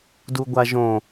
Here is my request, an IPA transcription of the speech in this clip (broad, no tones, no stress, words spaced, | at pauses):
duɡʷaʒõ